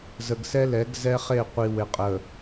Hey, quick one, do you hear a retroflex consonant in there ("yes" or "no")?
no